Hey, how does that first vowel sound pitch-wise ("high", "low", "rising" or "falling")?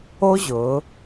high